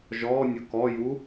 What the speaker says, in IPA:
ʒɔnʲʊ kɔju

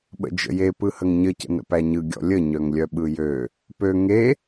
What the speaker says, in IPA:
ɓə̰d͡ʒə̰je pɯhəŋɲə cə̰nə̰pæɲɯ ɡʲɔ̰lʲə ɲœŋlʲœɓɯjø | pø ŋe

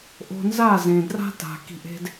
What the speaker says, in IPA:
ʔo̤˧nza˦˨ zẽ˨dra̤˦ta̤˨ ki̤˧ʔe̤˦d

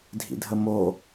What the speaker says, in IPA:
dʱḭdʱəmo

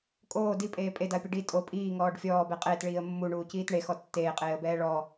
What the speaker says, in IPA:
kʼoː dipʼeː pʼedaə̯pʲo ɖi tʼo pʼiːŋɔːɖ fʲɔːbɛ qʼeːtɭiːə̯ mːuɳuːciːt ɳexɔ tːeːqʼeːə̯bɛː ɭɔ

